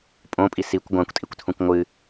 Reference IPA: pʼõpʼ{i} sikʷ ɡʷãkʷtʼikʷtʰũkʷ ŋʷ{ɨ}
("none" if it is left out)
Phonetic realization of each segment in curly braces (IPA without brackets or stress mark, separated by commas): i, ɨ